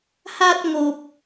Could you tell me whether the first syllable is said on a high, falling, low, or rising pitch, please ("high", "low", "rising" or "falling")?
high